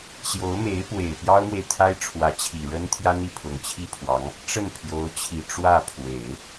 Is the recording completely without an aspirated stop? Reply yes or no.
no